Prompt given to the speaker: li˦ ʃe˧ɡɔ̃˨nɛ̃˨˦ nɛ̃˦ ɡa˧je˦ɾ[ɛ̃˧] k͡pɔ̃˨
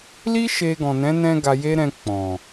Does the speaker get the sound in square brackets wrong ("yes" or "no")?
no